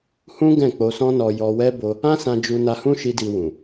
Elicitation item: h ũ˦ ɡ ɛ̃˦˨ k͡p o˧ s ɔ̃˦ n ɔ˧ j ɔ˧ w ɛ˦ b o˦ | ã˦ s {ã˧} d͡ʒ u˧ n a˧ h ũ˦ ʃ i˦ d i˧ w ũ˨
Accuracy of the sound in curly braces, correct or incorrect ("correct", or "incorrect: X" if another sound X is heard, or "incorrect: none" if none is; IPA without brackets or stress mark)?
correct